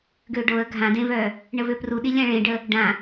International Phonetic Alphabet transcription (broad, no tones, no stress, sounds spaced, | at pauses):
ɡ ø ɖ o ə̯ ɡʱ ã d ẽ v œ | ɳ ə v ø p r u ɗ i lʲ ã ɭ ẽ ɖ ə | ɖ ã